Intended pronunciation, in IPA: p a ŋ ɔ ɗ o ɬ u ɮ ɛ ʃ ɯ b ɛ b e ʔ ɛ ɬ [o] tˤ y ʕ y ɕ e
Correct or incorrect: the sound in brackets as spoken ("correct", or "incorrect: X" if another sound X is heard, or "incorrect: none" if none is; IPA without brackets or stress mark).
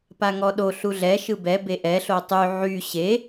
correct